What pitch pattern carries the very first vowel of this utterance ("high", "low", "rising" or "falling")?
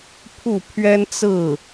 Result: falling